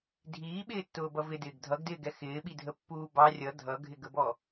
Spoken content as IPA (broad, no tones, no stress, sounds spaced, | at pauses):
dʱ iː ɓ ɪː tː ʊː b ʌ v ɪ d ɪː ɡ dʱ ʌ ɡ d ɪː ɡ ɛ x ɪː ɓ i dʱ ə pː uː b ɑ rʲ ʌ dʱ ʌ ɡʱ ɪ ɡ ə b ɔ